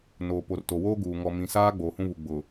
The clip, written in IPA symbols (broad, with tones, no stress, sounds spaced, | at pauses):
n oː˨ p o˨ r t o˨ w oː˦ ɡ uː˨ ŋ ɔ˨ m ĩ˨ s aː˦ ɡ͡b oː˨ h ũ˦ β u˨ ɡ͡b ʊ˨